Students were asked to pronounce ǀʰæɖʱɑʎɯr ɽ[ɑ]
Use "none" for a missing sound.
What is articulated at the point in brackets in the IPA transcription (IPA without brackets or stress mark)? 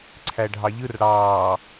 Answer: ɑː